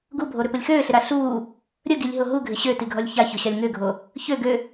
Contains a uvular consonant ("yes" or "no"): no